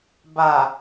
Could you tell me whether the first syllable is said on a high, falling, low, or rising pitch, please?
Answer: low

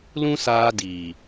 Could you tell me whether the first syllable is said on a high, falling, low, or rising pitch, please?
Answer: high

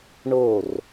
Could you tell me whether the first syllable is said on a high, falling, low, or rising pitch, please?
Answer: falling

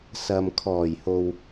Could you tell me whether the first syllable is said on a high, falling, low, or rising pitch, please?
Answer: low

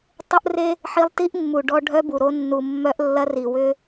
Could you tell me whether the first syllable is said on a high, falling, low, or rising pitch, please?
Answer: high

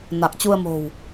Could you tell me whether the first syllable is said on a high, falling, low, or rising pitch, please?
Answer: low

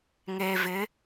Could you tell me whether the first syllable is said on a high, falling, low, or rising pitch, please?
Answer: low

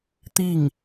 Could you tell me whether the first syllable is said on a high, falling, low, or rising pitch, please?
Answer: falling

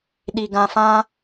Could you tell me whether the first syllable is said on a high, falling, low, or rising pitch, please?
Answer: low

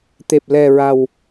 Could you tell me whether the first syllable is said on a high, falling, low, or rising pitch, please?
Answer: low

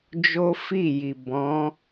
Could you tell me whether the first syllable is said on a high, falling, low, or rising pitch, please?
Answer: high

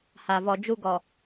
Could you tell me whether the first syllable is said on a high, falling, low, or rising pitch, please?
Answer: low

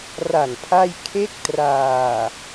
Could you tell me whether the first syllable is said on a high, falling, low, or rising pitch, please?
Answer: low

